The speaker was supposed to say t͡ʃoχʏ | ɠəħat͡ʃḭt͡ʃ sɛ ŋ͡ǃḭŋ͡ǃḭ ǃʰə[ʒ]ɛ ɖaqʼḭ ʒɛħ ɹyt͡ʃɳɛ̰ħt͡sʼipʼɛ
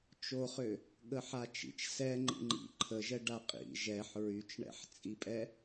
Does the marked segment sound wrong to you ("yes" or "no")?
no